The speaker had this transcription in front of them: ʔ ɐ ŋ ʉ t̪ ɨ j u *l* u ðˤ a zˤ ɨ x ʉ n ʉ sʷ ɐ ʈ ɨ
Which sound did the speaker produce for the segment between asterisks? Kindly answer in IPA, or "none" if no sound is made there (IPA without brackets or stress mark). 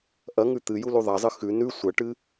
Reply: l